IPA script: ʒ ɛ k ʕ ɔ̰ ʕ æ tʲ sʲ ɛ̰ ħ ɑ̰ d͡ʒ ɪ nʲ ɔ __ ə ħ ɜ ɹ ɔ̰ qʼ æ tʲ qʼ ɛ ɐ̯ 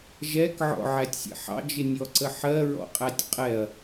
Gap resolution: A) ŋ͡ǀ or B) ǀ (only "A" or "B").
B